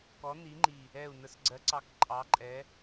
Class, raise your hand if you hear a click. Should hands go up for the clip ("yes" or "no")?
yes